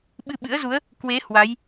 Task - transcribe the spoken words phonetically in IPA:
ɓɨ˧ɓɨ̰˧˥ə̯zu˨˦ə̯ | kwe˨˦ hwa˨˦j

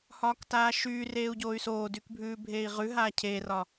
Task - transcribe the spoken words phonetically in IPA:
hɒːktaːʃyreːu̯ ɟoːy̯soːdyk bʱʉːbʱeːi̯ʁʉɦaː cʰeːrɒ

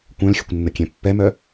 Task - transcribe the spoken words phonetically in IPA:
kʷœ̃lxʲəkʷ nːəkʲɛ̃pːɛmœ

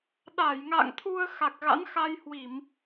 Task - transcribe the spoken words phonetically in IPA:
ɗa˧˩jŋa̰˧˨ŋt̪ʰu˧ə̯ xa˨˩k̚ɣa̰˧˥nxa˧jhwi˧˩˨m

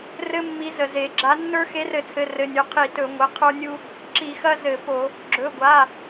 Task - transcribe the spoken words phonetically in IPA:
rɘ˦mːi˨˦ zə˩ze˩ ɡ͡ǁa˨˦nːə˞˦ xe˨˦rɘ˧˩˧t͡sʰɘ˩˧˩ rɘ˩˧˩nʲɵ˩˧˩ qʰi˧˩˧ tɵ˧˩˧ŋʷə˩˧˩qʰə˞˦nʲu˦ | ǁi˧˩˧ xɐ˦ zɘ˧˩˧po˧˩˧ | ɡ͡ǁɵ˩˧˩ɡʷa˩˧˩

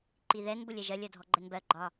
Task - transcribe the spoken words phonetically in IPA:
ǃiðɛn bʊlʲɛʒɜlʲ ɜdʱɔɡ͡ǃɛnbɜ ɡ͡ǃɒ

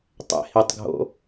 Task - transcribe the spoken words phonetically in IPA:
tˤɛ̰hitˤɡʱo̰

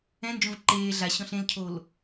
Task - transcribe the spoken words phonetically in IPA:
ɛ̃nd͡ʒõv ǃeː ɮaɕɔ̃ɬ ẽlcʰol

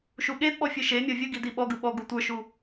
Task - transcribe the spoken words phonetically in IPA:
ʃuɠedɓɔ fʲɯʃemʲɔ vʲɯ ɡidiɓɔɡɯ ɓɔ ɡutʷə˞ʃu

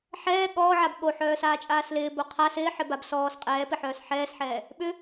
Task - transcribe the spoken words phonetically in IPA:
ħɛː ɠɔːʕab ɠoħœːsaːt͡ʃʼaːs lɪːbo qʰa sɪːħɪbab sɔːs qʼɛːpɪħœːs ħɛːsħɛː | ɓʏ

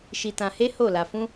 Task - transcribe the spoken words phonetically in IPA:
ʃi˧tã˧he˦ ho˦˨la˧ fũ˦

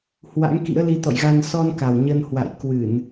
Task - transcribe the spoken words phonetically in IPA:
hwa̰˧˥ŋkḭ˧˥ə̯li˨˦ t̪ɔ̰˧˨jɣa˧n sɔ˧nka˨˩w ɲə˧nhwa̰˧˨j kwɨ˧˩˨n

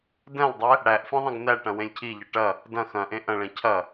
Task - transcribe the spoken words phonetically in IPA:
dɛ̃lˠdˤɛ | ɽæʔfẽ ðˤɐ̃ɡnæʈɐ̃ wẽlʲcʰiʎɐ ʈɐ | dɐ̃ xɐ̃ʔẽ ʔɐ̃ɭɛ̃ cʰɐ

